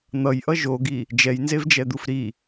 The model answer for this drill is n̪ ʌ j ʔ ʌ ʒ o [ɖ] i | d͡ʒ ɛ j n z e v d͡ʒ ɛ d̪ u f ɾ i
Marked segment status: incorrect: ɡ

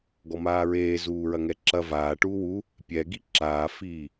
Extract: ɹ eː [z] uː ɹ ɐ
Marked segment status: correct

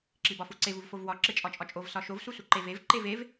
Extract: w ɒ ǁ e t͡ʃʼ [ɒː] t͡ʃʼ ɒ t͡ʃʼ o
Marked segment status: incorrect: ɒ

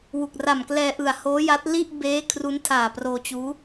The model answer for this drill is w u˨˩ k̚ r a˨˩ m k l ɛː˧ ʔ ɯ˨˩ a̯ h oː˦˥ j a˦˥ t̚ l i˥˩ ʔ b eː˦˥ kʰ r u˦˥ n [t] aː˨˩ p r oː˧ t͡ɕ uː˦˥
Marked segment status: incorrect: tʰ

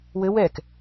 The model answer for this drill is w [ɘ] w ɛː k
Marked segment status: correct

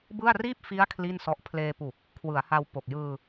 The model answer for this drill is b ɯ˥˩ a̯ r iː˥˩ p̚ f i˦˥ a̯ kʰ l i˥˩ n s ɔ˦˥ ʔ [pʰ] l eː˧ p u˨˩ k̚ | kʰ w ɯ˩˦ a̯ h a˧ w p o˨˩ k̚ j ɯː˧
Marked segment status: correct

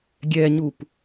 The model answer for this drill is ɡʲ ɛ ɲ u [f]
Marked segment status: incorrect: p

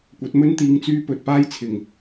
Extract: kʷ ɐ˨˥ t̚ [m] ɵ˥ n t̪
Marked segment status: correct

